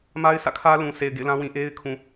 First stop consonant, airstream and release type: aspirated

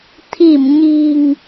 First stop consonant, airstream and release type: aspirated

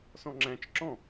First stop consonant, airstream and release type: click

